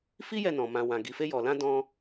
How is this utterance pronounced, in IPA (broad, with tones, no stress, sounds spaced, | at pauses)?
f i˦ j ɛ˦˨ n ɔ̃˨ m ã˨ w ã˨ ɡ i˨ f e˧ j ɔ˨ l ã˧ d ɔ̃˧